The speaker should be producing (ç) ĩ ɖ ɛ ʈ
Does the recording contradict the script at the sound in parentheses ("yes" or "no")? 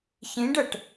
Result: no